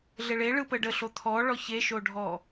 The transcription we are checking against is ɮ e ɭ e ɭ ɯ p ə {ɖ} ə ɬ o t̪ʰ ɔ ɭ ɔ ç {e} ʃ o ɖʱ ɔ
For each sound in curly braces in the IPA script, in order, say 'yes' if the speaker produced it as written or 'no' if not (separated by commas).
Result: yes, yes